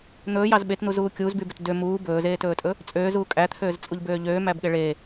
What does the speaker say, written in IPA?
n̪ ɵː j ɑ z ɓ e t n̪ u z uː kʲ uː z b y b ø t d ø m uː b ɵː z eː t ɵː tʼ ɵ | t͡sʼ øː z uː kʼ æ t̪ʰ øː z t͡sʼ u ʎ b øː ʎ øː m æ b ɠ e ɭ eː

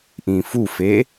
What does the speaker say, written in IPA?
ʔ ĩ f u f e

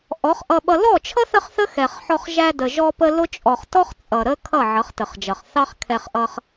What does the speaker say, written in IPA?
ʔ ɔ˨˦ χ ʔ ʌ˧ ɓ ʌ˧ l ɔ˦˨ t͡ʃʰ ʌ˦ θ ə˦ χ θ ə˦ x ɛ˨ χ ħ ɔ˧ χ ʒ æ˧ d ə˨ ʒ ɔ˧ p ə˧ l ʊ˦ t͡ʃʼ ɔ˨ χ t ɔ˦ χ t͡sʼ ʌ˨ ɾ ə˦ kʰ ʌ˦˨ ʕ ʌ˨˦ χ t ə˨ χ d͡ʒ ʌ˨ χ θ ɑ˦ χ kʰ ɛ˧ χ ʔ ʌ˧ χ

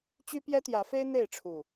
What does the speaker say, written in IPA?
t͡ɕ y˦ p j ɛ˦ t̪ j ä˨˦ f e˦ ɪ̯ n̪ e˥˨ ɪ̯ ʈ͡ʂʰ u˨˩

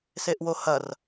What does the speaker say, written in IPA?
s e ʔ w o h ɐ r

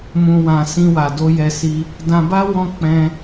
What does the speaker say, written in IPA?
m ũ˨ w ã˨ s ĩ˧ w a˨ d o˧ j ɛ˧ s i˧ | d ã˧ b a˦ w ɔ̃˧ k͡p ɛ̃˧

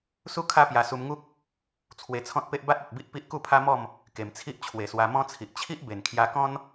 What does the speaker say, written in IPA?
s u˦ kʰ a˦ p j a˧ s u˧ m ŋ u˦ k̚ | t͡sʰ w e˧ t͡sʰ ɔ̃˦ t̚ p e˦ ʔ b a˦ t̚ a˨ t̚ b i˦ ʔ p i˦ ʔ k u˥˧ pʰ a˦ m ɔ˥˧ m | k e˨˩ m t͡sʰ i˦ ʔ t͡ɕʰ w e˨˩ s w a˧ m ɔ̃˦ t͡sʰ i˨ ʔ t͡ɕʰ i˦ ʔ b e˨˩ n kʰ j a˧ k ɔ̃˦ n

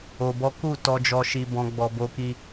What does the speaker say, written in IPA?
o˧ b ɔ˦ k u˦˨ t ɔ˧ d͡ʒ ɔ˧ ʃ i˧ b ɔ̃˧ ɡ͡b ɔ˧ b o˦ k i˦

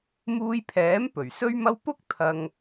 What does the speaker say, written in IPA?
m uː˧ j pʰ ɛː˨˥ m p ɵ˨˩ ɥ s ɵ˥ ɥ m ɐ˥ w p ʊ˥ k̚ t̪ʰ ɐ˧ ŋ

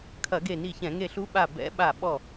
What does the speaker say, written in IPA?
kʰ ɐ˧˩˧ ɡ e˧˩ n i˧˩ ç ɛ̃˧˩˧ ŋ e˧˩ ɬ u˧˥ ɓ a˧˩ b ɛ̰˧˥ ɓ a˧˩ ɓ ɔ˧˩

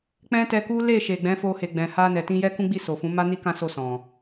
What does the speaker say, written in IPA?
k͡p ɛ̃˦ t ɛ˧ k u˦ l e˦˨ ʃ e˨ ɡ͡b ɛ̃˨˦ f o˧ h e˨ ɡ͡b ɛ̃˨ h a˧ n ɛ˨ t ĩ˧ j ɛ˦ k ũ˦ ɡ͡b i˦˨ s o˨ f ũ˨˦ m a˦ n i˦ k ã˦ s o˦˨ s ɔ̃˨

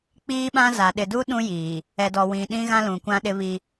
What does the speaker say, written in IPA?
k͡p iː˦ ɓ ã˦ z a˨ ɗ ɪ˨ d u˦ ɗ ũ˦ j iː˨ | ɛ˨ d ɔ˨ w ĩ˨ ɗ ĩ˦ ɣ ã˦ l ũ˨ kʷ ã˦ ɗ ɪ˦ β i˦

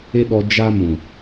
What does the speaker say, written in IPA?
e˦ ɗ ɔ˧ d͡ʒ a˦ m ũ˨

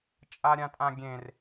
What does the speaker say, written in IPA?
t͡ʃʼ a ɾʲ ã tʼ ã ɡʲ ẽ r

